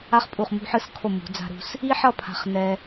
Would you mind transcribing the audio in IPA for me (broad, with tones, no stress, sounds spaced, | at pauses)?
a˥ χ pʼ u˧˩ χ m ṳ˥˧ ħ ɯ˥˧ s kʰ o˧˩ m ṳ˩˧ d͡z a̤˧ ɾ ṳ˧ s | i˥ ħ ʌ˥˧ pʰ a̤˧˩ χ n ɛ˧